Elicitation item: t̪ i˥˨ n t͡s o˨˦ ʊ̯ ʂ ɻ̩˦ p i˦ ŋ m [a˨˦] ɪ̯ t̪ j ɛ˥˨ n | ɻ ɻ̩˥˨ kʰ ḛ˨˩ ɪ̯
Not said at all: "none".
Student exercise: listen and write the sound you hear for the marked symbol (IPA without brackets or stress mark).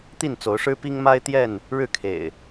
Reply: a˦